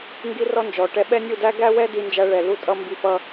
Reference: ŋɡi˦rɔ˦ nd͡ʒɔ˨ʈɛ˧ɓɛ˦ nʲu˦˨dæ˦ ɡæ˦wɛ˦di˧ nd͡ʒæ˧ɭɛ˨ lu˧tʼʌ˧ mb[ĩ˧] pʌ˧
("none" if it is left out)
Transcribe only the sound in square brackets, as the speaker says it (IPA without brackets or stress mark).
i˧